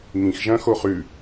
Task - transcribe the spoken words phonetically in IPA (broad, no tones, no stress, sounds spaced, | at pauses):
ŋ ĩ x ʒ ɐ̃ x o χ ʉ